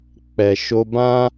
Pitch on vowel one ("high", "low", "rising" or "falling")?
low